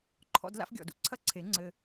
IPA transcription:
ǃʰ ɔ̰˧ d l a̰˧ f ɡʲ ɔ̰˨ d ṵ˧ ǀʰ ɐ˦ ǀʰ e˨˦ ŋ͡ǀ ɘ˧

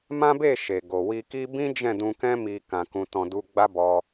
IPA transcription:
m ã˦ b e˦˨ ʃ e˨ ɡ o˨ w i˧ k i˦ b ĩ˦ d͡ʒ ɛ̃˦˨ d ũ˧ k ɛ̃˦ m i˧ k ã˨ k ũ˨ t ɔ̃˧ d u˧ ɡ͡b a˦ b ɔ˧

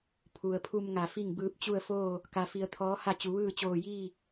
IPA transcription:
pʰ u˩ ə̯ pʰ u˧ m ŋ a˧˩ f i˥˨ ŋ b ɯː˧ p̚ t͡ɕ u˥˨ ə̯ f oː˥˨ | k a˧ f i˧ ə̯ t̪ʰ ɔː˧˥ h a˥˨ t͡ɕ u˩˧ ʋ ɯː˥˨ t͡ɕ oː˧˩ j iː˥˨

